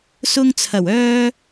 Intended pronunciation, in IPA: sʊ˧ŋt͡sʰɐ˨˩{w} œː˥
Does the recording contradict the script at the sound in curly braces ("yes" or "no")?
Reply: no